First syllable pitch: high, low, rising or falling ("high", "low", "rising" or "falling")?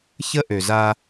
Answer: high